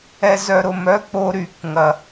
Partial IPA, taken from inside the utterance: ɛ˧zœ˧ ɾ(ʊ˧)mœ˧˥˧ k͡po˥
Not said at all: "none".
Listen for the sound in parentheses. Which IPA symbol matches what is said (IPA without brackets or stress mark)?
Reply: ʊ˧